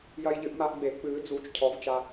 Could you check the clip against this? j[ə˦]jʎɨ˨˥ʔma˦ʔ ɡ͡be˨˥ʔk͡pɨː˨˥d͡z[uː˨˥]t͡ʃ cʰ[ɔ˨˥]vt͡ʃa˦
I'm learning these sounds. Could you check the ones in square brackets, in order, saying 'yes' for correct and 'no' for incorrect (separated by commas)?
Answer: no, yes, yes